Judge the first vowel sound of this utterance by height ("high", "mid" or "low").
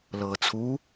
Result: mid